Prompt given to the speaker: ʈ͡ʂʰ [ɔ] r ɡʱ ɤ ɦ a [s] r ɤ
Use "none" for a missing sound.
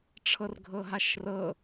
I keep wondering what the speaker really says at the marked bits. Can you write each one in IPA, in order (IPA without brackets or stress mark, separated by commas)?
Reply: ɤ, ʃ